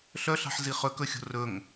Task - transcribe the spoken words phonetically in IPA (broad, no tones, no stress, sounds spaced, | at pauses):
ɬ œ ɬ ɑ̤ ħ z i χ ɵ k ɵ xʲ o̤ r ɵ ŋ